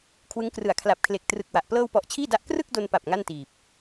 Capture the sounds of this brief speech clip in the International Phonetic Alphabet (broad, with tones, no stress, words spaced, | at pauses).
kʰwɯ˦˥ŋ krɯ˩˦a̯kʰla˨˩p̚kʰle˨˩k̚ trɯ˨˩k̚wa˨˩ʔ plɤː˧wpɔ˨˩ʔ t͡ɕʰiː˥˩da˦˥ʔ krɯ˥˩k̚do˧npa˨˩p̚ ŋa˥˩ntiː˨˩p̚